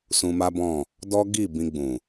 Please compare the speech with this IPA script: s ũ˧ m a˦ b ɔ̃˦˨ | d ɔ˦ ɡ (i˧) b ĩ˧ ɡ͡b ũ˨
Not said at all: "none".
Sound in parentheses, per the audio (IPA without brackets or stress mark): i˦˨